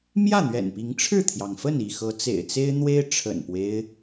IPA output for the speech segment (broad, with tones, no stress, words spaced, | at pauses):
mjä˥˨n̪ɥɛ̰˨˩npi˨˦ŋ ʈ͡ʂʰɻ̩˥˨t̪ʰjɑ˩ŋfə˥˨n i˥˨ xɤ˨˦t͡sḛ˨˩ɪ̯t͡se˦ɪ̯n̪we˦ɪ̯ ʈ͡ʂʰə̰˨˩npwe˦ɪ̯